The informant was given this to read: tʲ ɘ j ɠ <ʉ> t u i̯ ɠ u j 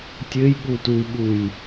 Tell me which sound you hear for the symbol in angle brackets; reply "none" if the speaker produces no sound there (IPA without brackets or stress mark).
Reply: u